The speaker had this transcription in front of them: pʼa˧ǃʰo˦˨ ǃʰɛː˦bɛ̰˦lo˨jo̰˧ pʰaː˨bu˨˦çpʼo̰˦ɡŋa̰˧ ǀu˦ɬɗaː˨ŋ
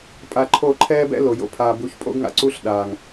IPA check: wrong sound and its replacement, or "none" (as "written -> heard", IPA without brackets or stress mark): none